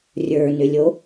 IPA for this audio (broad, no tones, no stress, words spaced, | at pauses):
rʲə˞nʏlʲo